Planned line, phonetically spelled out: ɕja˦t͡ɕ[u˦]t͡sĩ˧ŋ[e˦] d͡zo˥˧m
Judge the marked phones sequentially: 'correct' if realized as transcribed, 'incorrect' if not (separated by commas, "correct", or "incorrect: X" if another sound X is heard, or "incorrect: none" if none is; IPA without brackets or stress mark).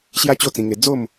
incorrect: o˦, incorrect: e˧